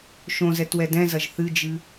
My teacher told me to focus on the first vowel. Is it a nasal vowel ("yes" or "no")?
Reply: yes